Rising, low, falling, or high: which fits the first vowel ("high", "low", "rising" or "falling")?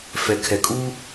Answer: low